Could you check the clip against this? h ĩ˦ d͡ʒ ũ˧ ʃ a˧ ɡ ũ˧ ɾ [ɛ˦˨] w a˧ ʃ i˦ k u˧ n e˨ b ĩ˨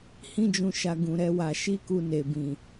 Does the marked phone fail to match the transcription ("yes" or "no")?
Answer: yes